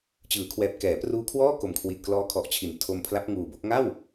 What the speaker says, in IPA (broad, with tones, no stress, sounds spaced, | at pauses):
t͡ɕ ɯː˩˦ kʰ w ɛː˨˩ p̚ k ɛː˩˦ p r uː˦˥ kʰ w ɔː˥˩ k o˨˩ m kʰ w i˨˩ t̚ k l ɔː˦˥ kʰ ɔ˨˩ ʔ t͡ɕʰ i˩˦ n tʰ o˧ m pʰ l a˦˥ p̚ ŋ uː˨˩ b o˦˥ k̚ ŋ a˥˩ w